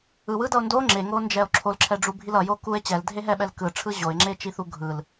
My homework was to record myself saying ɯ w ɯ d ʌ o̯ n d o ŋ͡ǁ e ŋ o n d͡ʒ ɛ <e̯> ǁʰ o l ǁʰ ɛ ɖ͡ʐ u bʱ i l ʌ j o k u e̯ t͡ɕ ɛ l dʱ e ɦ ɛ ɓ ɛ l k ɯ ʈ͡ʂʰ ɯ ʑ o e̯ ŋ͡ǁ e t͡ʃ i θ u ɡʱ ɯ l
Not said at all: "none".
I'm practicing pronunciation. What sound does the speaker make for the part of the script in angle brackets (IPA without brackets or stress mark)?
o̯